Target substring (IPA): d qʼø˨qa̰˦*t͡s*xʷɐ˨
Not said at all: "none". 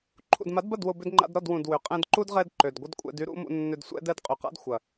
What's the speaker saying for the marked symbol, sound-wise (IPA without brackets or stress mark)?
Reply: d